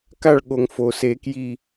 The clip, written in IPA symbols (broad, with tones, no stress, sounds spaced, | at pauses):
k a˦˨ ɭ ɠ o˩ ŋ f o˩ s e˨˩˦ k j i˦˨